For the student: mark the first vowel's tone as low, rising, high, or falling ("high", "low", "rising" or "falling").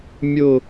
falling